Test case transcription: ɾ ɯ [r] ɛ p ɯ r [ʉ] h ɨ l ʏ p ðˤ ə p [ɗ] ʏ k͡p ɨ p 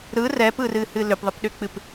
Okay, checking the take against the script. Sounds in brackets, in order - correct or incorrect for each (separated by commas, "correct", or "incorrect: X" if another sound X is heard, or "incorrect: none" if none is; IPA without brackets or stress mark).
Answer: correct, incorrect: ɨ, correct